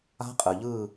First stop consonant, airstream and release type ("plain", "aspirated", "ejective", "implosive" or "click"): ejective